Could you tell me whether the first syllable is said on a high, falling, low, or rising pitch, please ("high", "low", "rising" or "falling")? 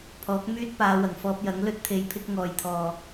rising